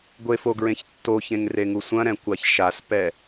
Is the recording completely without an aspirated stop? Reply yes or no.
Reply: yes